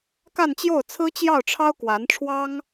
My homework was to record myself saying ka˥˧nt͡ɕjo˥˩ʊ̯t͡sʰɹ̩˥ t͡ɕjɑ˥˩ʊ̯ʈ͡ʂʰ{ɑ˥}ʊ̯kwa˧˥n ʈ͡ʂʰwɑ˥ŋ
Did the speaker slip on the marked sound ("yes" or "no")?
no